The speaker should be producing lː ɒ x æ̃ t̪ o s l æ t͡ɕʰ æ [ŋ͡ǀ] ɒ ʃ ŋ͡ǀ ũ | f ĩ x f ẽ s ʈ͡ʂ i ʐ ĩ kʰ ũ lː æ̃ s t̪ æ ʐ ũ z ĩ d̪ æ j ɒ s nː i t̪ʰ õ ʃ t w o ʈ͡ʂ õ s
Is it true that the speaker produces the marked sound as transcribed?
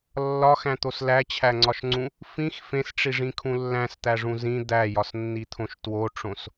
yes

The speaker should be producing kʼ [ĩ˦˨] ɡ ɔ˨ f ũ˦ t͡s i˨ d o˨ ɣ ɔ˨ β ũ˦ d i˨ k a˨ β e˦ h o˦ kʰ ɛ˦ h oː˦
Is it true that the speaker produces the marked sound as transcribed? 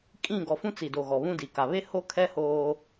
yes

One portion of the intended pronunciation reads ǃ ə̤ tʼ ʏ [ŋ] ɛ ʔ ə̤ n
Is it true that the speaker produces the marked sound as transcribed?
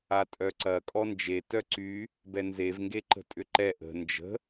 no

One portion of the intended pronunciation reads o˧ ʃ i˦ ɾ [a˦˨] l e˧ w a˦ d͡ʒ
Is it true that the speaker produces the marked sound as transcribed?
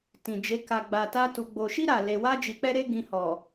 yes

